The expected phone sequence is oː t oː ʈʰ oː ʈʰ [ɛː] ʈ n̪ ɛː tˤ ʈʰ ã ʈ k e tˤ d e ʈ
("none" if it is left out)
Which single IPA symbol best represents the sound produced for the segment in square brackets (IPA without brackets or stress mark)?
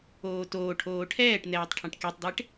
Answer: ɛː